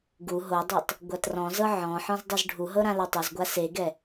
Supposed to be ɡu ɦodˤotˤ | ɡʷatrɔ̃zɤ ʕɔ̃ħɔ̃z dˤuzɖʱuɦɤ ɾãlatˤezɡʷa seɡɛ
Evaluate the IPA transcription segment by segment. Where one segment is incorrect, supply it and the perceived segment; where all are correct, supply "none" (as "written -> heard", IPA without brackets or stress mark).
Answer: none